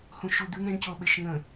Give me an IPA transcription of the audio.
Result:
h ũ ʃ u d̪ ʉ ŋ ɾ ẽ ɳ c o ɓ e ʃ ŋ ə̃

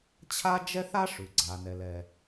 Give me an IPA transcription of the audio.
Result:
t͡ɕʰ a˥ d͡ʒ ɛ˥ θ a˥ ʂ ʉ˩ ɡ͡ǀ a˩ n ɛ˩ l ɛ˩

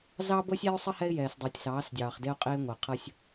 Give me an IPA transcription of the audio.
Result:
z ɑ˦ b ɤ˦ sʲ ɛ˦ ʊ̯ sˤ ə˦ h ɛ˦ ɪ̯ j ɛː˨ s dˤ əː˨ tʲ s ɑː˨˦ s dʲ ɑː˨ χ d e˦ ʊ̯ qʼ eː˦ ŋʷ e˨ qʰ ɤ˦ sʲ

